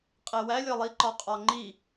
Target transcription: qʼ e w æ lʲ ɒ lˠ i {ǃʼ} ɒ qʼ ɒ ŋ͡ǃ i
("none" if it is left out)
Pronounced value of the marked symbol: ǃ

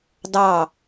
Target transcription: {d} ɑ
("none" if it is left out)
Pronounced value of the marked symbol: d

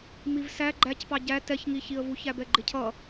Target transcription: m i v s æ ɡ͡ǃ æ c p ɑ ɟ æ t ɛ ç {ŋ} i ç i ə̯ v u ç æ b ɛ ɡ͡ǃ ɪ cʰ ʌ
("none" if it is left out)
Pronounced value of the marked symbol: ŋ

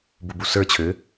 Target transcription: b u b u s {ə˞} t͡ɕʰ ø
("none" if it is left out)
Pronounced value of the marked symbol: ə˞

